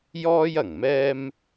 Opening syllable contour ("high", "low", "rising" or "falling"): high